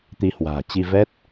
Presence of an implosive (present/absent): absent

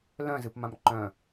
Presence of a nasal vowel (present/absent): present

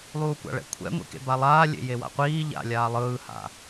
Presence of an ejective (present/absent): absent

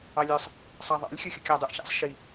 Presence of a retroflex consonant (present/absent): absent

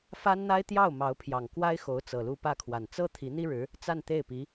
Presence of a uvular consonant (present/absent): absent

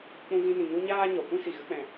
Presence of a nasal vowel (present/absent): present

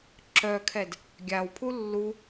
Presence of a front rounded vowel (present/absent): present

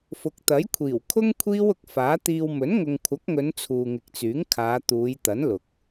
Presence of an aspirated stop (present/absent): present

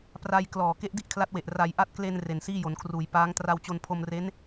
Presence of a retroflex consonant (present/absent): absent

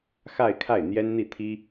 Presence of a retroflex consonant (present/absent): absent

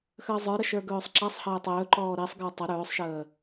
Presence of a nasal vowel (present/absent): absent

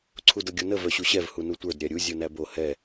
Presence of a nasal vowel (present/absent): absent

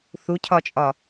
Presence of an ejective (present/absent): present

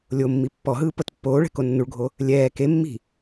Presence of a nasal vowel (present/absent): absent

